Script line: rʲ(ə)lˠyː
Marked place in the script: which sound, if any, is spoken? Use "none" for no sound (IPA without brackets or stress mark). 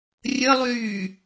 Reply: ə